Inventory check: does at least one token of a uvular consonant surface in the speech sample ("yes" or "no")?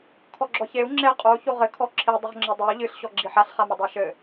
yes